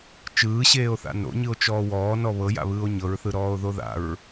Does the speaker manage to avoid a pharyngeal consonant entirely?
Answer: yes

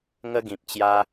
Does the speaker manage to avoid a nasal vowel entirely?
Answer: no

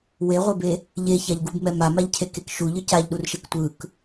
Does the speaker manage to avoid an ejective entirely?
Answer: yes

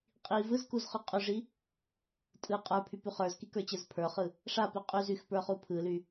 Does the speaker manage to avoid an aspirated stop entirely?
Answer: no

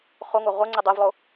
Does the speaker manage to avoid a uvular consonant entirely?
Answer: no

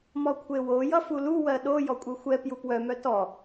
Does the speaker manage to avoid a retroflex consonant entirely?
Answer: yes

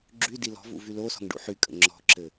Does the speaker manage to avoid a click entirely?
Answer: no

